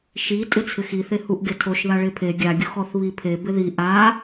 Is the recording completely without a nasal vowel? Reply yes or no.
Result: yes